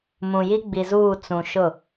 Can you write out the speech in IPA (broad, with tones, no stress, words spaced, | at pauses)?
mũ˨ji˦ɡ͡bi˨zuː˦˨ t͡sũ˨ʃʊ˦˨